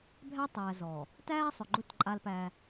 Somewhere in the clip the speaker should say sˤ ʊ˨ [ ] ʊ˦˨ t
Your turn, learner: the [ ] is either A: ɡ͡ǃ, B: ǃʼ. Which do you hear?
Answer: A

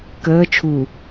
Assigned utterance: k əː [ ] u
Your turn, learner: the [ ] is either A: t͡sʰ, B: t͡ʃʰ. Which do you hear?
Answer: B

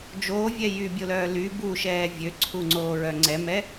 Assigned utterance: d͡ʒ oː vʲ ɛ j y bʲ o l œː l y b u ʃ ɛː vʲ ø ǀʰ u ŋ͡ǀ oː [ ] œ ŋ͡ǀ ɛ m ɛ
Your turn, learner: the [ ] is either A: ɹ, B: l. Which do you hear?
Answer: A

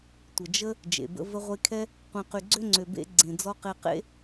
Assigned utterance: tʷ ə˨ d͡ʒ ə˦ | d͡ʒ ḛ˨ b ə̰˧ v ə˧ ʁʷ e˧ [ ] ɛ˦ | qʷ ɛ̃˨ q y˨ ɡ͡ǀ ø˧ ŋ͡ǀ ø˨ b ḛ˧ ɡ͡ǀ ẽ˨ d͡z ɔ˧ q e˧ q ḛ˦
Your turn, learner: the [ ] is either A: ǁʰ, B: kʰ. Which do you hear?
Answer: B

